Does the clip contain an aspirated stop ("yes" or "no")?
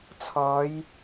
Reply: yes